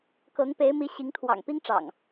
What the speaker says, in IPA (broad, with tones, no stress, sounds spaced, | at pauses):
k ɤ˨˦ ŋ p e˨˦ ɪ̯ m i˨˦ ɕ i˨˦ ŋ t̪ʰ w ɑ̰˨˩ ŋ p i˦ ŋ ʈ͡ʂ ɑ̰˨˩ ŋ